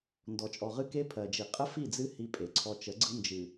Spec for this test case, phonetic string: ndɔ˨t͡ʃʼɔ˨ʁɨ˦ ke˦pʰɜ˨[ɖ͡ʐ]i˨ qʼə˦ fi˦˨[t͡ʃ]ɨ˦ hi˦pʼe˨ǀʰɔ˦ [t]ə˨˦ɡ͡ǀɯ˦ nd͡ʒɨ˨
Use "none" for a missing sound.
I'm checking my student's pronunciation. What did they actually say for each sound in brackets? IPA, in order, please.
d͡ʒ, d͡z, t͡ʃ

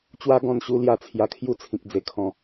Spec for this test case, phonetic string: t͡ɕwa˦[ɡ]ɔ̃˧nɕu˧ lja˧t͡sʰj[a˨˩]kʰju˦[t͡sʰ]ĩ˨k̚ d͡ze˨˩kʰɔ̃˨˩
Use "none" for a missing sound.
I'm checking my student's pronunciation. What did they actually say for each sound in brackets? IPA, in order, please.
ɡ, a˧, t͡sʰ

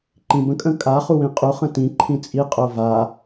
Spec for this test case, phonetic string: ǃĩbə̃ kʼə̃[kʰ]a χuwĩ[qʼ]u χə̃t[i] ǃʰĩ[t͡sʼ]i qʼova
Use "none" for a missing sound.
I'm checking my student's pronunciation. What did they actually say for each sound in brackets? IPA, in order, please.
kʼ, qʼ, ĩ, t͡sʼ

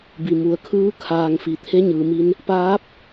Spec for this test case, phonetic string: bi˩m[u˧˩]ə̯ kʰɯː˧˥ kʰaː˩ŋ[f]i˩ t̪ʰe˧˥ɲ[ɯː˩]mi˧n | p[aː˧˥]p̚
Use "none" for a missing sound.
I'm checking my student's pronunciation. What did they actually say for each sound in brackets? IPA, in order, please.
u˩˧, f, ɯː˩, aː˧˥

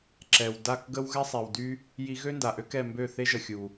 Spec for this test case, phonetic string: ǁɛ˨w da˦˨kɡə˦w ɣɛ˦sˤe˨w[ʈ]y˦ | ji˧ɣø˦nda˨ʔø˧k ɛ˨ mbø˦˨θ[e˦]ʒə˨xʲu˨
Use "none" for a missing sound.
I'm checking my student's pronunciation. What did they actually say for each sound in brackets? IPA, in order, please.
d, e˦

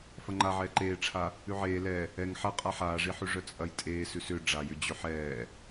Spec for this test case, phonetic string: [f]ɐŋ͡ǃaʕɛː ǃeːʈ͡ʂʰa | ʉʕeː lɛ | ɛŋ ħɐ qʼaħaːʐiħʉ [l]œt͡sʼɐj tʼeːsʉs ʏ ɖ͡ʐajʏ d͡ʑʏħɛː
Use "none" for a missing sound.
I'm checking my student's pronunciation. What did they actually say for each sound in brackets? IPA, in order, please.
f, ʐ

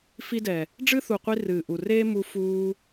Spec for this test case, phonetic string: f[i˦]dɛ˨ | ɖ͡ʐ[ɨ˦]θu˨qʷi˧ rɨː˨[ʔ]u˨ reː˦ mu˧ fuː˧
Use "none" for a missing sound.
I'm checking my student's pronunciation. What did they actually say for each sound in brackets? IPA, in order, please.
i˦, ɨ˦, ʔ

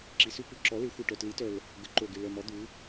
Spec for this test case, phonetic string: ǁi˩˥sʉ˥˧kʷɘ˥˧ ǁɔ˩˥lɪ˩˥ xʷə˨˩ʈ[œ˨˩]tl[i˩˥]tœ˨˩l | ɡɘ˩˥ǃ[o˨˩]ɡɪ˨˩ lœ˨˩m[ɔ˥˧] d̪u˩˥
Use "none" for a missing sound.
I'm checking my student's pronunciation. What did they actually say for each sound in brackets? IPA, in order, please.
œ˨˩, i˩˥, o˨˩, ɔ˩˥

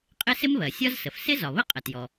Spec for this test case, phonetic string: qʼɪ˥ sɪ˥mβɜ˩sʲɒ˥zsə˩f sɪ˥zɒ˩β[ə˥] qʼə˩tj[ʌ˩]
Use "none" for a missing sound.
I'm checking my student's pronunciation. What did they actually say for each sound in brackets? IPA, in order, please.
ə˥, ɔ˩

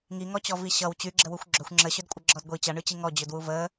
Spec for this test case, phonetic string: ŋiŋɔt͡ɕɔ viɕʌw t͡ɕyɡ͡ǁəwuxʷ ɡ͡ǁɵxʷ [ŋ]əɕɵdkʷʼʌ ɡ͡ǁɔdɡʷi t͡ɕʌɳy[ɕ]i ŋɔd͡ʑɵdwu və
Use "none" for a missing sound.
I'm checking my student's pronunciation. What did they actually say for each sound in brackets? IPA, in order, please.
ŋ͡ǁ, t͡ɕ

